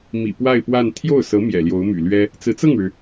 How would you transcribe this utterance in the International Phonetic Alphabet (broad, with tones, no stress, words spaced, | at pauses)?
mḭ˨˩ pwa˥˧ɪ̯pwa˥˧n t̪ʰjo˥˩ʊ̯sɤ˧˥ mjɛ̰˨˩ljo˧˥ʊ̯my̰˨˩lɥɛ˥ | t͡sɹ̩˧˥t͡sɤ˥˩ŋɻɻ̩˩